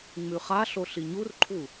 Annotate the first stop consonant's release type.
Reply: click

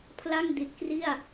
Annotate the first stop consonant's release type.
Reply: aspirated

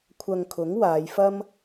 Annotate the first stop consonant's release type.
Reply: aspirated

